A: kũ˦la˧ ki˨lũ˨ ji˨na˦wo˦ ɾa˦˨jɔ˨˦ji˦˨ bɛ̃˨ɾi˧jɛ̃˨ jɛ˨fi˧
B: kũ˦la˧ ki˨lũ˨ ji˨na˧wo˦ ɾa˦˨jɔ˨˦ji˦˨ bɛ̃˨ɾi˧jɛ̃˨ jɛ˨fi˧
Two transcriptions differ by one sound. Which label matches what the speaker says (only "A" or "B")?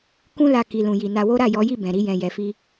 B